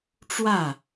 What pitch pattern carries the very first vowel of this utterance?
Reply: falling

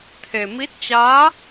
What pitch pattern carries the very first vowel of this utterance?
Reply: low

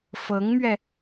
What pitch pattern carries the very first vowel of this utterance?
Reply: rising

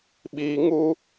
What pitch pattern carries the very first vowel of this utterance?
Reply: high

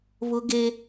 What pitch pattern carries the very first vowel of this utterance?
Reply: high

